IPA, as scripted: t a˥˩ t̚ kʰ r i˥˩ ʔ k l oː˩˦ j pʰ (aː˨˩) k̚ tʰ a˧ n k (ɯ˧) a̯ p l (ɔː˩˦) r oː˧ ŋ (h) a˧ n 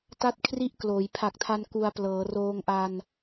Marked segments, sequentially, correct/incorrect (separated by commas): incorrect, incorrect, incorrect, incorrect